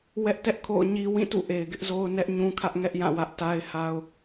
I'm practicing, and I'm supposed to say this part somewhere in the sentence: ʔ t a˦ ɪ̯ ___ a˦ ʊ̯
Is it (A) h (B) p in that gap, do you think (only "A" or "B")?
A